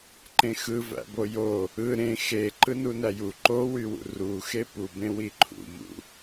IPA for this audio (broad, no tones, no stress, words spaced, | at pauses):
ǃẽxɯvæ̰bo jo | ɯ ɾẽ xe ǃɯnunæju ǃowywṵ ruxe pubẽwi ǃʰṵʎṵ